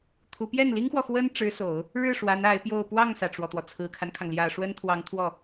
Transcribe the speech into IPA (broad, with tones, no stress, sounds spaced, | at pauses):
t̪ʰ u˧˥ p j ɛ˥˩ n l i˥ ŋ x w ɔ˨ x w ə˥ n ʈ͡ʂ ɻ̩˧˥ s o˨˩˦ ʊ̯ | ɻ ɻ̩˥˩ ʂ w a˧˥ n a˧˥ ɪ̯ p j o˥˧ ʊ̯ p w ɑ˥˩ ŋ s ä˩ ʈ͡ʂ w ɔ˩ t̪ w ɔ˩ t͡sʰ ɹ̩˨˩ kʰ a˦ n kʰ ɑ˩ ŋ l j ä˨˩ ʂ w ə˥ n t̪ʰ w ɑ˧˥ ŋ t̪ʰ w ɔ˥˩